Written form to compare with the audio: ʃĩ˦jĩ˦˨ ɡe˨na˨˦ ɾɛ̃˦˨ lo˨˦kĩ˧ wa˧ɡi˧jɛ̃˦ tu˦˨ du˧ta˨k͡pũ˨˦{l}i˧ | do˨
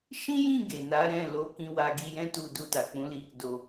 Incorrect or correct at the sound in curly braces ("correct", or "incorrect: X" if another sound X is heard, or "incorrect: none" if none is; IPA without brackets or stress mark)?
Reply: correct